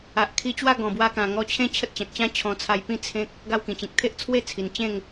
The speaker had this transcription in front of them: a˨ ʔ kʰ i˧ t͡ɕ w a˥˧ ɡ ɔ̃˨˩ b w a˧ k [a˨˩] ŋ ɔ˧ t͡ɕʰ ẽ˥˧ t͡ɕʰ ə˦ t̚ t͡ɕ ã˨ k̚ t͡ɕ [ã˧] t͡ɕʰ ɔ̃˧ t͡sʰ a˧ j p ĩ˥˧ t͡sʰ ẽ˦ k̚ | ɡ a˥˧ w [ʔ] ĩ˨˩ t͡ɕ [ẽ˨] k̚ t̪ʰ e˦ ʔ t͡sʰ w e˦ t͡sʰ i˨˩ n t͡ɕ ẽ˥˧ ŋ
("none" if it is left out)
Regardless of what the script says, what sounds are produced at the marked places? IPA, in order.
ã˨˩, ã˦, k, ĩ˨

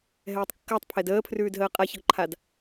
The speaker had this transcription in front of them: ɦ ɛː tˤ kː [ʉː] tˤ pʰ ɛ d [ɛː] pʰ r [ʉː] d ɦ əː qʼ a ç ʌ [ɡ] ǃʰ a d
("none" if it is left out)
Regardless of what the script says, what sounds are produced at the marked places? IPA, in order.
əː, əː, ʉː, ɡ

